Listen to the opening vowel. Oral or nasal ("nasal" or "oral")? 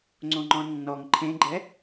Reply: nasal